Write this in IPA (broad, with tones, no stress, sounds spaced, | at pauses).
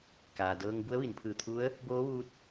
k aː˩ d ɤː˧ ŋ b u˧˥ ə̯ ʋ i˩˧ n pʰ ɯː˧˩ t̪ʰ u˧˥ ə̯ | b oː˧˥ ʋ uː˧ t̚